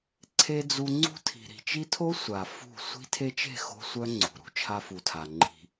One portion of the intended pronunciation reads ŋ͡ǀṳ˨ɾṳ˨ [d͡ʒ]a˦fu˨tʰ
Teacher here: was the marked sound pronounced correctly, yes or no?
no